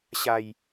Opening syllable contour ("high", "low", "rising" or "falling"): low